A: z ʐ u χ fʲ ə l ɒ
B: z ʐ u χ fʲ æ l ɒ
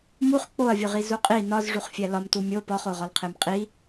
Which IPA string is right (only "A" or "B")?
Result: B